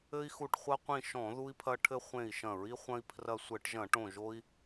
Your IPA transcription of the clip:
ɘ˦i̯xu˧˩ʈχʷɐ˦qʷĩ˧˩ ʃɔ̃˧˩˧ ðu˦i̯pʰɐ˦ʈʰɘ˦ χʷẽ˧˩i̯ʃɐ̃˧˩˧ɹi˦ χʷɐ̃˦i̯ pʰrɐ˧˩sʷɘ˧˩˧ʈʒɐ̃˧˩˧ʈõ˧˩ ʒo˦i̯

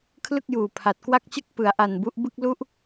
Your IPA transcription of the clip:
kʰlɯ˥˩k̚juː˨˩pʰa˨˩t̚ kwa˥˩k̚t͡ɕɯ˥˩k̚ pɯ˩˦a̯ʔa˨˩nbu˦˥ʔ bɯ˥˩k̚lu˥˩ʔ

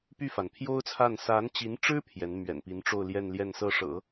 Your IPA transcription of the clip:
py˥˩fa˩npʰjo˥ʊ̯t͡sʰa˥˩n sa˧˥nt͡ɕi˧˥nʈ͡ʂɻ̩˥ pʰjɛ˧˥n mɥɛ̰˨˩npi˧˥nʈ͡ʂo˥˧ʊ̯ ljɛ˥˧nljɛ˥˧nsɤ˥˩ʂɤ̰˨˩˦

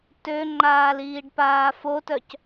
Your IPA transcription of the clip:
tøŋ͡ǃaːliːɖpaː fotœc

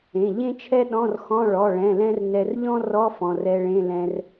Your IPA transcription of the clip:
ẽ˩˧˩ʎẽ˥t͡ʃʰɛ˥ ɗɔ̃˧˥˧rxɔ̃˧˥˧ ɭɔ˩˧˩ɭɛ̃˩˧˩ lɛ̃˥rnɛ˧r ʎɔ̃˥rɔ˧˥˧ fɔ̃˩˧˩rɛ˧ɭẽ˧˥˧lɛ̃˧r

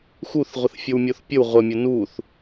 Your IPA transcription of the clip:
xuθʁʷəθfʲow mʲoθpʲəw ʁʷəmʲə nuθ

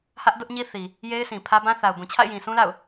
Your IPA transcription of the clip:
hä˦ʔdʊ˦ʔɲi˦θi˨ | je˦ɪ̯sʰĩ˨pʰä˦ bã˦ θa˨ʊ̯bũ˨ t͡ɕʰa̰˦˨ɪ̯jĩ˨sũ˦la̰˦˨ʊ̯

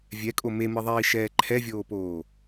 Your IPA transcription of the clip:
vʲɛkʼo memɯðˤiːʃɛː ǃʰɛvʲoːpoː

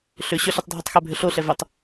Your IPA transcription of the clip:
ɬʏ ɕʏɬɐtˤ dʱutˤxɛbʱʏ ɬoɬɛ vʏtˤ

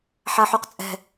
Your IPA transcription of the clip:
ħaħuqt͡sʼɛ̤

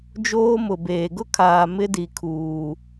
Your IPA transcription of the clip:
d͡ʒoː˦mʊ˨beː˨ ɡʊ˦kʰaː˨ mɪ˦di˨kʰuː˨

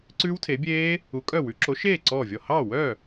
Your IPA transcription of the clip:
ǀʉː˦˥wtʰe˨˥bʲeː˦˥ | u˨˥kʼœ˥˩wʉ˨˥ ǁo˨˥ʃeː˥˩ ǀɔː˥˩vʲɔ˥˩ hɑ˥˩wœ˥˩

